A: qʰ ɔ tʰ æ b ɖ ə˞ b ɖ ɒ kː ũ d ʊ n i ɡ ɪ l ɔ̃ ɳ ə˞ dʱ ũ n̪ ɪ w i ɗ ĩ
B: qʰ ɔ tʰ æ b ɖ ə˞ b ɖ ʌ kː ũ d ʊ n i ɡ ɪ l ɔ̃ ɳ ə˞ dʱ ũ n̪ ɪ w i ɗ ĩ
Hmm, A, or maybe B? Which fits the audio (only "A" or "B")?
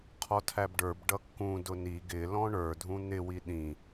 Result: B